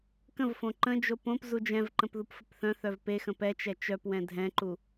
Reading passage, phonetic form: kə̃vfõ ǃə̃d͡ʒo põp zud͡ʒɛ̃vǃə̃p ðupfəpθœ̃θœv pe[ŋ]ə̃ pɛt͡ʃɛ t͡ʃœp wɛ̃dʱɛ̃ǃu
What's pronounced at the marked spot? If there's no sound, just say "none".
x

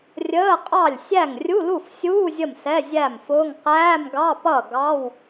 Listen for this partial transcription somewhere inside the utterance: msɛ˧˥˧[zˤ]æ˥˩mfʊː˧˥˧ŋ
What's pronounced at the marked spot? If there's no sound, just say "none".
zʲ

